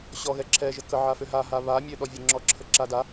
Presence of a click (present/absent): present